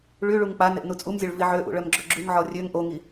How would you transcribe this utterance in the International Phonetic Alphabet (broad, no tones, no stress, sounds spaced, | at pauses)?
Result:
ɭ y ɭ u ŋ k͡p a n e ʔ n u t͡sʼ u m zʲ ø ɭ v i ʕ ø ʔ ṵ ɭ œ m ɡ͡ǁ œ ɡ͡ǁ y ŋ ʕ ɔ rʲ ø ŋ ʔ o ŋ i